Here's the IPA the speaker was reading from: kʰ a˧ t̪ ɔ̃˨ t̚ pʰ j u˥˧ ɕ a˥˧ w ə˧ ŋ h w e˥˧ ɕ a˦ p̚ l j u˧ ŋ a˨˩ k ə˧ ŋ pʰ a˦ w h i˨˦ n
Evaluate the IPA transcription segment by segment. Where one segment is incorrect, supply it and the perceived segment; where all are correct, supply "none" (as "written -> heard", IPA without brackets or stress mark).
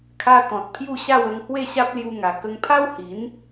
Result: none